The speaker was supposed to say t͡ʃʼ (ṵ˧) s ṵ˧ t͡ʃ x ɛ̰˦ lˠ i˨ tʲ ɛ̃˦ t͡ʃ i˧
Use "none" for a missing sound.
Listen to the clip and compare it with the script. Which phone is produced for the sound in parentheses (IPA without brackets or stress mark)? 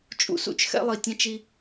ṵ˦